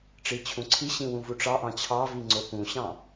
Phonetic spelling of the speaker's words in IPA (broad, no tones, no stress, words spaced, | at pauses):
ʈ͡ʂit͡ɕʰũǀʰiɕĩ wũvuʈ͡ʂɑʔɑ̃ t͡ɕʰɑvi ŋ͡ǀopũɕɑ̃